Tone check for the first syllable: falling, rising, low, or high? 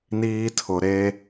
high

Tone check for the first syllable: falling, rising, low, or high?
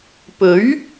rising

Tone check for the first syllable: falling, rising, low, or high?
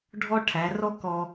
high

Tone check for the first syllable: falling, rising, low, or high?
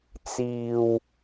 low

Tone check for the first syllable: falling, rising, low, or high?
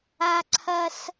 high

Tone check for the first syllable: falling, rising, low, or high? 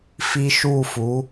high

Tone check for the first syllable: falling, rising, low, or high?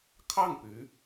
falling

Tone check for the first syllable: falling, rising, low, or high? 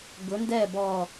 rising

